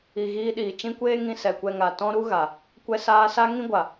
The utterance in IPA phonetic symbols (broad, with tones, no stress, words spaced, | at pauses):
i˧ ɣiː˧ɗiː˨ t͡ʃĩ˧ kʷeː˦ŋĩ˧ sɛ˨kʷɛ˧ŋa˨ tɔ̃˦ɾu˦ɣa˨ | kʷɛ˦saː˦ sa˦ŋĩ˦ɡʷa˨